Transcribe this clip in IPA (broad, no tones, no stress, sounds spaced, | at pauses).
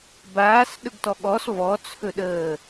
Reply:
b aː s ɗ ɵ ɡ t ɔ ɠ ɔ s v ɔ t͡sʰ ɵ ɗ əː